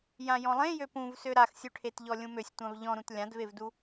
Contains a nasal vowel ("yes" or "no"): yes